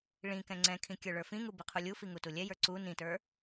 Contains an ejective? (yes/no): no